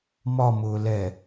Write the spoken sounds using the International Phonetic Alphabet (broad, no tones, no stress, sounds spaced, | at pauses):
m ɒ m ʊː l ɛ